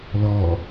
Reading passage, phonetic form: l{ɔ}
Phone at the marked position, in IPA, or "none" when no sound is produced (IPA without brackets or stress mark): ɔ